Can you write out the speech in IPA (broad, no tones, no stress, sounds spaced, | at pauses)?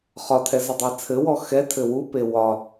χ ɒ tʰ ɛ z ɘ dˤ ɛ t͡sʰ ɘ w ɔ x ɛ tʰ ɘ w u p e w ɒ